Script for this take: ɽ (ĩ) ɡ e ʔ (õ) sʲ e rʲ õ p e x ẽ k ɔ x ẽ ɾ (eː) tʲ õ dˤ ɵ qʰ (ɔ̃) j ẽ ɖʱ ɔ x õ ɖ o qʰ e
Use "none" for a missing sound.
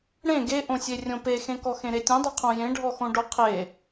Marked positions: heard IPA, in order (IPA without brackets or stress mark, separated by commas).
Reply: ẽ, õ, e, õ